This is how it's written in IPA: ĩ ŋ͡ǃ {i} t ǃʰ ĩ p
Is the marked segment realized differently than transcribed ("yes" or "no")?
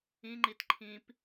no